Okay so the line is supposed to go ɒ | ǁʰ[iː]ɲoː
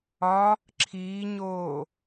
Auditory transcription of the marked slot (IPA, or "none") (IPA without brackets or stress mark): iː